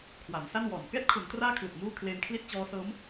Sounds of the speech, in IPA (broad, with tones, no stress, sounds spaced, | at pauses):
kʰ w a˩˦ n s a˥˩ n w ɔː˨˩ n k ɛː˦˥ t̚ kʰ u˩˦ n t r aː˦˥ kʰ l ɯ˨˩ k̚ m uː˥˩ kʰ l eː˧ m kʰ l i˥˩ t̚ t͡ɕ ɔː˦˥ s ɤː˦˥ m